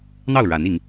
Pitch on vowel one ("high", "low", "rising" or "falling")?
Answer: falling